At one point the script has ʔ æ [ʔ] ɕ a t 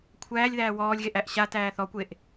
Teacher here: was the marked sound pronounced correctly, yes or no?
yes